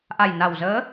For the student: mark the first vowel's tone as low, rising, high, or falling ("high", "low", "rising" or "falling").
low